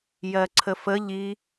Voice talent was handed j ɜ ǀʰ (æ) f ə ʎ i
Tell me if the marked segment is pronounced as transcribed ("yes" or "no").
no